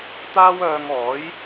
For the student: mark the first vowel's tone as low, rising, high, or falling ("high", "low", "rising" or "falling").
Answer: high